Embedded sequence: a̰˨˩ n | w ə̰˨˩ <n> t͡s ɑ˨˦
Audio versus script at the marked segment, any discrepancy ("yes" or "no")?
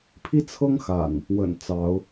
no